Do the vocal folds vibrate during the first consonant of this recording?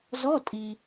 yes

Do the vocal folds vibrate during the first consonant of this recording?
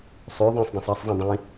no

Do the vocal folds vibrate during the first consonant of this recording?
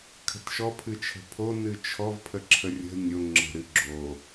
no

